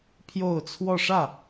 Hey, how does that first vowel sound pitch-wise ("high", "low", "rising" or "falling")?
falling